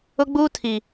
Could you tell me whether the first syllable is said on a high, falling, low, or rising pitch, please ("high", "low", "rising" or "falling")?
high